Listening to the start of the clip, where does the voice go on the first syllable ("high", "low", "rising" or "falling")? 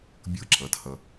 high